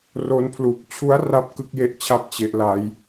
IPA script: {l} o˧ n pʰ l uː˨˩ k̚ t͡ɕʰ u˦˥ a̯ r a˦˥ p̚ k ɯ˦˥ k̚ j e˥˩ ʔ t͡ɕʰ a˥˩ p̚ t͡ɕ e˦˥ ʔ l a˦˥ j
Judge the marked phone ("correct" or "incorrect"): incorrect